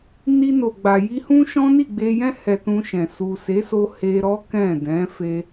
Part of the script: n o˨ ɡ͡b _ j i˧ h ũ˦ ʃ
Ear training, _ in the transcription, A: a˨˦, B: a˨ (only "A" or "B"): B